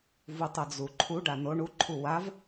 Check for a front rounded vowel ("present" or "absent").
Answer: absent